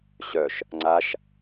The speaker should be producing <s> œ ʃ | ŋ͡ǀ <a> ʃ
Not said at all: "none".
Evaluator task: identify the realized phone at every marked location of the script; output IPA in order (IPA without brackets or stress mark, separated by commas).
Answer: ɕ, a